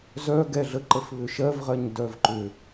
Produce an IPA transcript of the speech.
z œ ɡ ɛ ɮ ə ǃ ə f β ʏ ʃ ɜ v ʁ ɜ ɲ d œ v ǃ ʏ

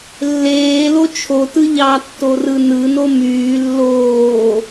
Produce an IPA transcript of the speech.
lː eː l o t͡ʃʰ o t ɯ ʎ ɑ tː o r ɯ n ɯ n o m yː lː oː

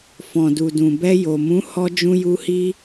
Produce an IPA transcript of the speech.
f ɔ̃˨ d u˨ d ũ˨ b ɛ˧ j o˨ m ũ˨˦ h ɔ˧ d͡ʒ ũ˧ j u˧ h i˧

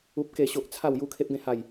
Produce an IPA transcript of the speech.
u˦ p̚ k e˥˧ ɕ o˦ ʔ t͡sʰ a˥˧ w j u˦ kʰ e˦ p̚ ɡ ẽ˥˧ h a˥˧ j

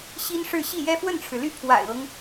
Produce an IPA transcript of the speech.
ɕ i˥ n ʂ ɻ̩˥˧ ɕ i˥˩ j ɛ˥ f w ə˥˩ n ʈ͡ʂʰ ɻ̩˩ l y˥˩ pʰ w a̰˨˩ ɪ̯ ɤ˦ ŋ

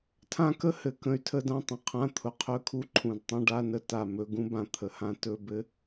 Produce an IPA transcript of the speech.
tʰ ã˦˥ k ə˦˥ h ɘ˨˩ k ə̃˦˥ y̯ tʰ ə˦˥ d ã˧˥˧ tˤ ə̃˧˥˧ qʰ ã˧˥˧ t̪ʰ ʊ˨˩ qʰ ɵ˦˥ kʰ u˧˥˧ ǃʰ ũ˨˩ d tˤ ə̃˧˥˧ ɖ a˧˥˧ n ə˦˥ t a˨˩ m ɵ˧˥˧ ɡ ũ˦˥ b ã˨˩ t̪ʰ ə˨˩ h ã˦˥ t ɵ˧˥˧ b ɘ˦˥

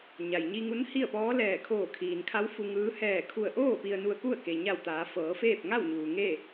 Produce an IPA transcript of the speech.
ɲ a˩ j ɲ i˧ ŋ u˧˥ n h i˥˨ ə̯ p ɔː˧˥ l ɛː˧˩ kʰ oː˧˩ kʰ iː˩ n kʰ a˧˥ w f u˧ ŋ ɯː˧˥ h ɛː˧˩ kʰ u˧˩ ə̯ ʔ oː˥˨ p i˧ ə̯ n u˧ ə̯ k u˥˨ ə̯ k e˩ ɲ a˧˩ w t̪ aː˩˧ f ɤː˩˧ f eː˥˨ p̚ ŋ a˥˨ w ɲ uː˩ ŋ e˥˨

